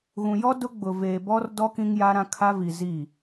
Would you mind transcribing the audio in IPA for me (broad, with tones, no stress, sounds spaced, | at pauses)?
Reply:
ɣ ũ˨ j ɔ˦ d ʊ˦ ɡ͡b ʊ˨ v eː˨ b ɔ˦ r d ɔ˦ k ĩ˦ ŋ j a˦ ɾ ã˦ kʰ a˦ v i˨ z i˦˨